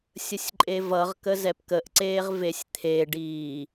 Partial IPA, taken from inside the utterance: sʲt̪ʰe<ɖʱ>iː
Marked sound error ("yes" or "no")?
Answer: yes